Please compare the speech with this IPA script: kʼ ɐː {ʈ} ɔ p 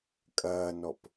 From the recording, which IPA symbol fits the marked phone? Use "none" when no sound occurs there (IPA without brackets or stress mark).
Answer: n